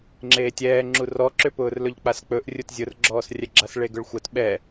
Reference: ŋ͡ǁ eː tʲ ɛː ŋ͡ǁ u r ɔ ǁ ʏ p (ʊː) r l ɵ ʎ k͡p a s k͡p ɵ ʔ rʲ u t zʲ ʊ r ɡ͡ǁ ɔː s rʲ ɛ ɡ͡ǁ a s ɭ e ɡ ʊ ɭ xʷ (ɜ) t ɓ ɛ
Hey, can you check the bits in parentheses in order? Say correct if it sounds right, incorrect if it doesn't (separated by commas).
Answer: correct, correct